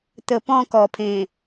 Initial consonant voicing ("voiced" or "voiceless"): voiceless